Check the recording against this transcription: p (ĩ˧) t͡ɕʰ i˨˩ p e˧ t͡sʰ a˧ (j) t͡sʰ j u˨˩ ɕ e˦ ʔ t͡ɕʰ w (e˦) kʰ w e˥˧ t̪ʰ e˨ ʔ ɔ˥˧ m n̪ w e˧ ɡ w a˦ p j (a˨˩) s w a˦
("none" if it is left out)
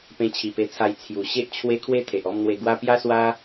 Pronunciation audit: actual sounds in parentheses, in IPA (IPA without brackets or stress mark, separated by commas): ẽ˧, j, e˦, a˦